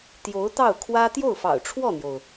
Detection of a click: absent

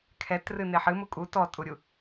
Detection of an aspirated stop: present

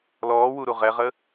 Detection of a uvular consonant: present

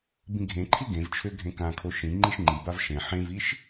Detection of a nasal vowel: present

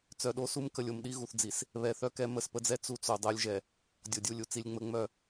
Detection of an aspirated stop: absent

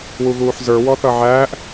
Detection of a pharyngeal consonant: present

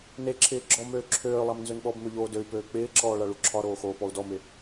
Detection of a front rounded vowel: present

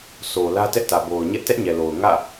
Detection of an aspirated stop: absent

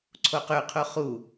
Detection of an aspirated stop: present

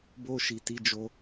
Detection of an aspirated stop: absent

